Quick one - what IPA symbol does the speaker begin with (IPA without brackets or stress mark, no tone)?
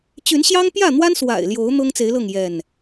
t͡ɕ